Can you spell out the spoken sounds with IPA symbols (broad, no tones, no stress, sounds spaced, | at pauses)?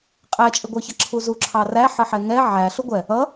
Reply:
qʼ æ t͡ʃʼ ɪ ɡʷ ə˞ ç ʌ ǁʰ u z u ǁʰ ɑ r æ ħ ə ħ ɛ ŋ ɛ ʕ æ ɬ ʊ ɡʷ ɛ | ʌ